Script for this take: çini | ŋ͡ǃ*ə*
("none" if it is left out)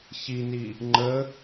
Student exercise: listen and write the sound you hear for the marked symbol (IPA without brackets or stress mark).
ə